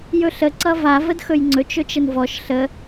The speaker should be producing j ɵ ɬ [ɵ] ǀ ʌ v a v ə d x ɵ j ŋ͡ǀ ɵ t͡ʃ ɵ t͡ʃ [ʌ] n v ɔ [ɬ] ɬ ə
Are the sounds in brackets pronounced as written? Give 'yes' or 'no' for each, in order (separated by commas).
no, no, no